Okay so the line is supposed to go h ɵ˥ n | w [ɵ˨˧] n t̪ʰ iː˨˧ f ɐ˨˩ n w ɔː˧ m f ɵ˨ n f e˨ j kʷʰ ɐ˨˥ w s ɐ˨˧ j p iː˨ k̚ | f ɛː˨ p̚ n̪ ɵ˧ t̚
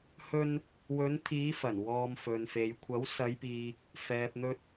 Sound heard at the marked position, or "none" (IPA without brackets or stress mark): ɵ˨˧